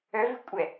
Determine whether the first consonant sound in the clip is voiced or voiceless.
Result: voiced